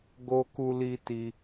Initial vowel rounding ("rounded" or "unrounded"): rounded